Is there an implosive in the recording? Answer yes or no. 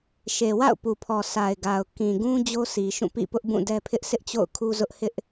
no